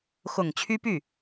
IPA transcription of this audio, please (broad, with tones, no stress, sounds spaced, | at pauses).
x ʊ˨˩ ŋ t͡ɕʰ y˥ p y˥˩